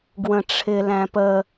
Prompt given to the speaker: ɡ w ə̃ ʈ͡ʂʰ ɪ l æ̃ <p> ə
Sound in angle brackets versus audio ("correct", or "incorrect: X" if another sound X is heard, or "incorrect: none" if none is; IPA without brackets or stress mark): correct